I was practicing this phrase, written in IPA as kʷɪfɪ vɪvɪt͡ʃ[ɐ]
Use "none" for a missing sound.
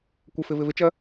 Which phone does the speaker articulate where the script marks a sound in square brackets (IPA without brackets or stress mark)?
ɐ